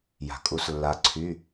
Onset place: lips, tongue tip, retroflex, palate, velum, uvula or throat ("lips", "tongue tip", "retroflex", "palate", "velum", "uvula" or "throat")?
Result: palate